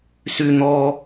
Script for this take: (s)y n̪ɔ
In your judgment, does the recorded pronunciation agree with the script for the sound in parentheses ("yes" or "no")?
yes